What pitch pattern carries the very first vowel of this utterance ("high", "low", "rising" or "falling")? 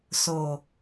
low